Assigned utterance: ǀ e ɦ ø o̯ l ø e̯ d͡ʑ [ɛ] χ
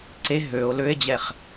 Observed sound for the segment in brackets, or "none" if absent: ɛ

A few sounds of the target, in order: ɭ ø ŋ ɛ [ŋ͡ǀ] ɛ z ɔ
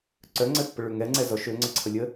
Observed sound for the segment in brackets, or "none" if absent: ŋ͡ǀ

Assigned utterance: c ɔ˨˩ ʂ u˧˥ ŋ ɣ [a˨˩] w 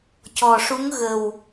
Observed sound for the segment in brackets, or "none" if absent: ə˨˩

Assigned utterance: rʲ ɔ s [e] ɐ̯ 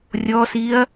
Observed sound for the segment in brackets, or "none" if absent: i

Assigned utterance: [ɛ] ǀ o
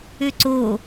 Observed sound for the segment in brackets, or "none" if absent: ø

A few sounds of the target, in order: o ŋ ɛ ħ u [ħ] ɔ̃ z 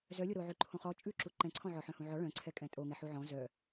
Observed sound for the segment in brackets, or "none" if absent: ʕ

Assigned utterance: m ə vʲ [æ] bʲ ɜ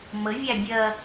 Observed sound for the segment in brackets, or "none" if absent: æ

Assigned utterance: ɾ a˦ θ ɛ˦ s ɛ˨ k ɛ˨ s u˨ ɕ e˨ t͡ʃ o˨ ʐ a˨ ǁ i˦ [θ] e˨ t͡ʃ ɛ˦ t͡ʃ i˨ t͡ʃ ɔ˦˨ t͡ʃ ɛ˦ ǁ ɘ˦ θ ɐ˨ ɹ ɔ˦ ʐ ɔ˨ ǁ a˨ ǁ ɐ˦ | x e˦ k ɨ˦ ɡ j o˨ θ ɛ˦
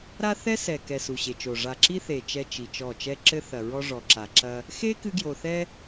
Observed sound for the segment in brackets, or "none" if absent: θ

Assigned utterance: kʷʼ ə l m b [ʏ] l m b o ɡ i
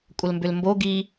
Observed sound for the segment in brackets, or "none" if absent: ʏ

